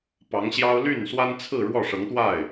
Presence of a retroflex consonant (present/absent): present